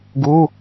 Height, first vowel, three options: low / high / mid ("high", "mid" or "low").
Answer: high